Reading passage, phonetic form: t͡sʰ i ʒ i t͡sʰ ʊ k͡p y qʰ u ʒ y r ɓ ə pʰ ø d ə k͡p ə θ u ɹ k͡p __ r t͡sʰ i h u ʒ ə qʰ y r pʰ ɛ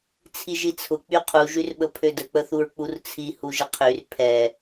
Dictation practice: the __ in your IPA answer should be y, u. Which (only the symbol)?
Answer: u